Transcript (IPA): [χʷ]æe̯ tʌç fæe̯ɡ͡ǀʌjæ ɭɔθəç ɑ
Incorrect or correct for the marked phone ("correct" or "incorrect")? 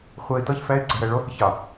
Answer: correct